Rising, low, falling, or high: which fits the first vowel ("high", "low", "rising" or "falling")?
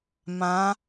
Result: rising